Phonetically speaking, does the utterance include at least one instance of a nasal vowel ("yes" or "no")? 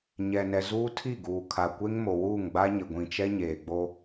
yes